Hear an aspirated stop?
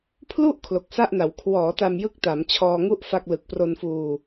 yes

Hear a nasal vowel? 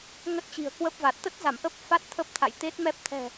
no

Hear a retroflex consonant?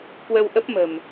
no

